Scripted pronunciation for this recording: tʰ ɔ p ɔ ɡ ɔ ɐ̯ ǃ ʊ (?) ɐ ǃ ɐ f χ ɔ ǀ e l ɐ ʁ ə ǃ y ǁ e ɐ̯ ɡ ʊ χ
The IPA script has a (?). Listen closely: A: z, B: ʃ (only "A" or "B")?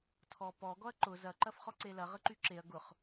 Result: A